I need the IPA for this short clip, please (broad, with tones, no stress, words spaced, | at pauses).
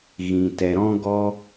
ɣĩ˨tɛ˨ɾɔ̃˧ ɡɔ˦